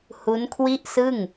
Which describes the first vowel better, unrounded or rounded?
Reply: rounded